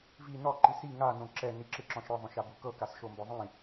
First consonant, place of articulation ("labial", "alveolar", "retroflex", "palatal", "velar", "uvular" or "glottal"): labial